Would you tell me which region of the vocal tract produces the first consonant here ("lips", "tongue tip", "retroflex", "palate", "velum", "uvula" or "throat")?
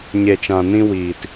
palate